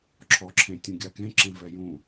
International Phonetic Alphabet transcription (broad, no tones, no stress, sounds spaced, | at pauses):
ǁʰ ɔ ǁʰ ẽ tʲ ũ ɡʲ a k ẽ ǁ ẽ v ɛ j ũ